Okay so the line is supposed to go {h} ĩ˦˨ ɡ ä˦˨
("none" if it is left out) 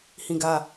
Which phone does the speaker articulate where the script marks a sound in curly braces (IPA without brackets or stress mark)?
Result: h